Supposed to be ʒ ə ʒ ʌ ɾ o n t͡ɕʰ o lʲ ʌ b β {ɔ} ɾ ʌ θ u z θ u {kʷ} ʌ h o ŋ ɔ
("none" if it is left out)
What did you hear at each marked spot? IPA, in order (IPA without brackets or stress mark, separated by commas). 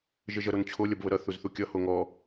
ə, kʲ